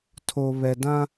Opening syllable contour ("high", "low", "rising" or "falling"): low